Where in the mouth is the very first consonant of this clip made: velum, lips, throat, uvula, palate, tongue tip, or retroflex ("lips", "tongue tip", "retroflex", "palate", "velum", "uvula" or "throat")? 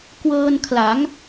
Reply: velum